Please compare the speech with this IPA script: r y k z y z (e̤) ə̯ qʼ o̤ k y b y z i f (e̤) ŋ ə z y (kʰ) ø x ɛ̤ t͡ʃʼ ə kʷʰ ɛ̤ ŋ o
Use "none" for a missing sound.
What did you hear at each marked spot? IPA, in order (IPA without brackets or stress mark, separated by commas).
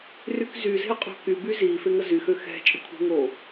e̤, e, x